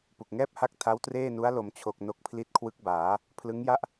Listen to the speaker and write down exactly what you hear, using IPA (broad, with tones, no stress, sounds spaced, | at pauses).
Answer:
p u˨˩ k̚ ŋ ɛː˥˩ p̚ h a˦˥ k̚ tʰ a˦˥ w t r eː˥˩ n u˦˥ a̯ l o˩˦ m t͡ɕʰ o˨˩ k̚ n o˦˥ k̚ pʰ l i˦˥ t̚ kʰ w ɯ˦˥ k̚ b aː˩˦ | pʰ l ɯ˦˥ ŋ j a˥˩ ʔ